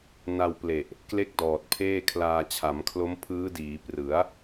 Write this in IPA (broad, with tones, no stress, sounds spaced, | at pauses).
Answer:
n a˧ w p l e˨˩ ʔ | k l e˥˩ k̚ d ɔː˨˩ t̚ pʰ eː˥˩ kʰ l aː˧ t͡ɕʰ a˩˦ m kʰ l o˦˥ m pʰ ɯː˦˥ d iː˩˦ p r ɯ˩˦ a̯